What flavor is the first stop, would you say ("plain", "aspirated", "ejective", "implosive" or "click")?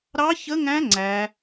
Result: click